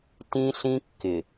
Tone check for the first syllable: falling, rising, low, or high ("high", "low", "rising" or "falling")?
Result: high